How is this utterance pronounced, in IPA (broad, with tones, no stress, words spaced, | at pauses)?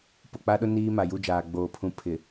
pʊ˨k͡pa˦ɗʊ˦ niː˦ma˨ju˦d͡ʒaː˨ ɡ͡boː˨pʰũ˨ pʰɪ˨